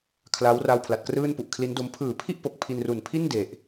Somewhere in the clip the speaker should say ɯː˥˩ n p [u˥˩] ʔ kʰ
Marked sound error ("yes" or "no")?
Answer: yes